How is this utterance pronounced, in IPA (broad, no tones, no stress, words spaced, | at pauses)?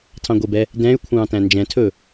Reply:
tʰɑ̃ɡʷebɛ | dɛ̃y̯ kʷʰɑ̃ːtæ̃nd͡ʒɛ̃tʰɵ